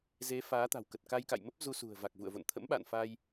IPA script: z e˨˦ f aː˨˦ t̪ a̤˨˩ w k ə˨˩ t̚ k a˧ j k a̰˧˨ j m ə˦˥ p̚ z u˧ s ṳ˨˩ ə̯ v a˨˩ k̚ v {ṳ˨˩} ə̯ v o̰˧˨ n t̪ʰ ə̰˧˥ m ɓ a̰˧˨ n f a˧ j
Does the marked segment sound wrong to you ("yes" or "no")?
yes